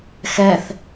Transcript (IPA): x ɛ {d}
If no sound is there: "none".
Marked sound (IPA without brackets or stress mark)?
θ